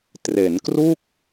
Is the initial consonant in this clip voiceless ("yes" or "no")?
yes